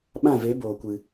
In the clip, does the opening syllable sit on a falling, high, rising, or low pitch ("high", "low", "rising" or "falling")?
falling